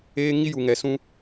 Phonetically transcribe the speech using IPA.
eː˦ ŋ i˦ j u˨ ŋ ɛ˨ s ũ˦

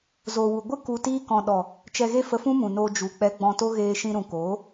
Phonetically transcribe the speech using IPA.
z o˨ w u˨ ɡʷ ɨ˦ k u˧ t iː˦ k ɔ̃˧ ɗ ɔ˨ | t͡ʃ ɛ˧ ɣ e˦ f ə˧ f ũ˦ m ũ˨ n oː˧ d͡ʒ u˨ k͡p ɛ˧ ɡ͡b ɔ̃˧ t o˦ ɣ eː˧ ʃ ĩ˧ ɾ ũ˨ k oː˨˦

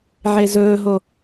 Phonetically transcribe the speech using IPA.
ʕ e z ɵː ɦ o

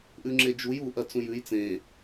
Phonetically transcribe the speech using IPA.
ʔ ʉ ŋ͡ǁ e d͡ʒ u j u ʔ ɐ t͡s ũ j ʉ j t͡s ẽ

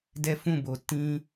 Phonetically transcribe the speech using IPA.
d ɛ˦ f ũ˦˨ b o˨ t ĩ˧

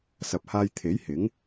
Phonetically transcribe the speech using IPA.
s ɐ˨ p̚ h aː˧ j t̪ʰ e˨˥ j h ɪ˨˥ ŋ

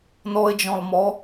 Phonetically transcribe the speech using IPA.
n ɔ ɪ̯ d͡ʒ ɔ̃ lˠ m ɔ

